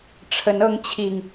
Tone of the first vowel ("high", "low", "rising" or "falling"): rising